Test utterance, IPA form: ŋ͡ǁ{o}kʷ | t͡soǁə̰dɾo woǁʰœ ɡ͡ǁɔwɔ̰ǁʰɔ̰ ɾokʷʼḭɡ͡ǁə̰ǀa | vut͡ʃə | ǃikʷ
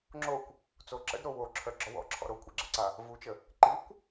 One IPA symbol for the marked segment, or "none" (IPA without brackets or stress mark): o